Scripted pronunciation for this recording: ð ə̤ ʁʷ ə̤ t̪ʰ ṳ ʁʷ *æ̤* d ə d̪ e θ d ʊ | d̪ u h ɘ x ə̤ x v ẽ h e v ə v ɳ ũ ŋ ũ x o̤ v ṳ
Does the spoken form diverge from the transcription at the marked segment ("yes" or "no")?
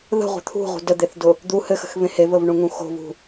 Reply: yes